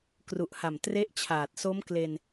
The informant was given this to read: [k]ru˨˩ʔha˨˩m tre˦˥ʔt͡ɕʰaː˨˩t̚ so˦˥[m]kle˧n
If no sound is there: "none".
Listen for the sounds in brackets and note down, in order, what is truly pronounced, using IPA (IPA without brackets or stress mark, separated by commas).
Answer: k, m